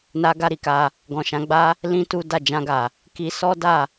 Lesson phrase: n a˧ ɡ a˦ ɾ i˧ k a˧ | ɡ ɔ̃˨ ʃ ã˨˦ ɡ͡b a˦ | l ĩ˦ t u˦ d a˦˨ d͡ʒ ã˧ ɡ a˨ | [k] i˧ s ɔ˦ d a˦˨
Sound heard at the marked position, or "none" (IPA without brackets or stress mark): k